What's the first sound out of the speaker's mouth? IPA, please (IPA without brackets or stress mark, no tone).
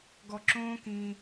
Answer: ɡ